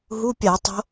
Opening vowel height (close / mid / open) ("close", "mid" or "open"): close